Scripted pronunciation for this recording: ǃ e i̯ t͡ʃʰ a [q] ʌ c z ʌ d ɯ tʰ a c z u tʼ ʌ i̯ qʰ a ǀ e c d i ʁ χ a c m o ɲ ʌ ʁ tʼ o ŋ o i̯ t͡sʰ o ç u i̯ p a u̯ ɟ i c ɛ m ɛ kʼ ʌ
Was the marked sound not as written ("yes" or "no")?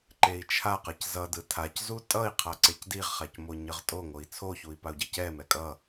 no